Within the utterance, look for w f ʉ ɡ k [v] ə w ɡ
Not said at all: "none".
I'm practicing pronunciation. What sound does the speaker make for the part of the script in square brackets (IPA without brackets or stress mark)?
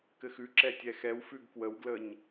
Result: w